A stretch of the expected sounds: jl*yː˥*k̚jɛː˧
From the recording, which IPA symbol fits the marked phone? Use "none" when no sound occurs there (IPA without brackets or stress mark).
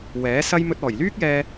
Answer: yː˥